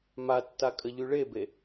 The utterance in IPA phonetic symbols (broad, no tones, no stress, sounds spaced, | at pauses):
m a tː a kʼ ə ʎ y ɭ e b e